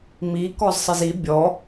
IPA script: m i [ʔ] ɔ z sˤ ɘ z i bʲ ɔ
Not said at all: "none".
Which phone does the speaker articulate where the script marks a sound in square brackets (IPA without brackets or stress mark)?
k